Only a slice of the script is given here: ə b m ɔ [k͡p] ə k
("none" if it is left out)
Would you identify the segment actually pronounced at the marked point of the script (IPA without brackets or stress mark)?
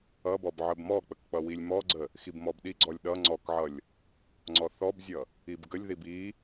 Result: k͡p